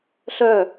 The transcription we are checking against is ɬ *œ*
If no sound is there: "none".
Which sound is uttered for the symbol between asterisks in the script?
œ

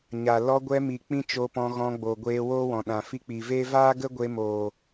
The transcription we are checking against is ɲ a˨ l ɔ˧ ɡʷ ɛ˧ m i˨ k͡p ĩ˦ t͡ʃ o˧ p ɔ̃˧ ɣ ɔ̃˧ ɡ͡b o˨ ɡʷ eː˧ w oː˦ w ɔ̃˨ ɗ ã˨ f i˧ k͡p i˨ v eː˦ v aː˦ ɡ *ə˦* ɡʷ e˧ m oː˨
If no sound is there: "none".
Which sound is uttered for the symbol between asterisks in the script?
ə˦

